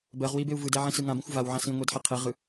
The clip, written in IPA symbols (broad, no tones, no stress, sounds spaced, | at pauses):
b ɜ ʁ w i b e u̯ v ɯ d ɛ ʕ ĩ s ɯ ŋ ã b ĩ xʷ v a w ʕ ã s ĩ ŋʷ e d ħ i qʰ e ʁ ɯ